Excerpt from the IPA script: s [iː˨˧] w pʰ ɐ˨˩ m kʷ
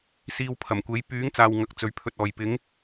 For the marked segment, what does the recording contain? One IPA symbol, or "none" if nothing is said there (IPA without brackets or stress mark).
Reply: iː˧